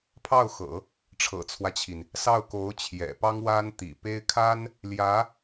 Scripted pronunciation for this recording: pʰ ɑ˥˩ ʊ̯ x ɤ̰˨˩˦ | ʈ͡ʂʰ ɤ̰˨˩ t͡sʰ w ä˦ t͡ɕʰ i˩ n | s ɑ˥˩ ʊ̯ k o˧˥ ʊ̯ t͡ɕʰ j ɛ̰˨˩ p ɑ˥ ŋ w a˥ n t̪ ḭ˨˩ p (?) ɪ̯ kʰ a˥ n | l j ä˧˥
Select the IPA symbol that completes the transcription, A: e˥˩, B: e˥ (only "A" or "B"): B